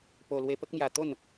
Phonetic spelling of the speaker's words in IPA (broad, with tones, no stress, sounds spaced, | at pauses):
p o˧ l w e˧ p ə˦ k̚ m j a˧ t̪ o˥˧ n